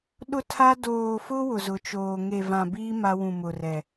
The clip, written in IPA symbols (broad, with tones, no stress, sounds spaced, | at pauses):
ɗ ʊ˦ tʰ a˦ d oː˨ f ʊ˦ w ʊ˨ z ʊ˨˦ t͡ʃ oː˨ ŋ e˨ v ã˨ b iː˦ m a˦ w ũ˨ m ʊ˨ r ɛ˨